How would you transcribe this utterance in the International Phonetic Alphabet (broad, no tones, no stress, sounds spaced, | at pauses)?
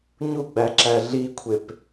ɲ u ɡ͡b æ ǁ æ ɮ i kʷʰ e p